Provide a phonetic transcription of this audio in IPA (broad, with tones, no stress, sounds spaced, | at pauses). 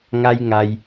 ŋ a˦ j ŋ a˧ j